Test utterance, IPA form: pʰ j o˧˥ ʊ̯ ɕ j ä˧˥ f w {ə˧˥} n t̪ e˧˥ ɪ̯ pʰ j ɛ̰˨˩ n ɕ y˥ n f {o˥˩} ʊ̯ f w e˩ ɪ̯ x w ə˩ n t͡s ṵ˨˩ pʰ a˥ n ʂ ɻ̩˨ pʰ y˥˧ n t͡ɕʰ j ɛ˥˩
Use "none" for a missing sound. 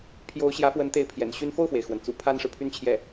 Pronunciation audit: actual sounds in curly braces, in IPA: ə˧˥, o˥˩

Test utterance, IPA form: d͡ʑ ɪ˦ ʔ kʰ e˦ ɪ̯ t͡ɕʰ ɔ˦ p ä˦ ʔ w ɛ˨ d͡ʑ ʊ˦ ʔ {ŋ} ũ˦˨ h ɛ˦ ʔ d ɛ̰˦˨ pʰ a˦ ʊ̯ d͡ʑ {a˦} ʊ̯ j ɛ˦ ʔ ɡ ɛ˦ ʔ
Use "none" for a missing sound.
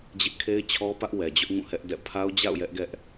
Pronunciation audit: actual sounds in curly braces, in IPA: ŋ, a̰˦˨

